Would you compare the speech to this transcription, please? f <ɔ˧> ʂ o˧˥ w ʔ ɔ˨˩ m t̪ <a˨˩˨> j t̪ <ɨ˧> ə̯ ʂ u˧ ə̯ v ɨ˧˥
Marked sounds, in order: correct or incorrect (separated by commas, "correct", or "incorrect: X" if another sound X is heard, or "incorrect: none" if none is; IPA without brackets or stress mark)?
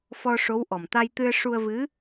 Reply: correct, incorrect: a˧, correct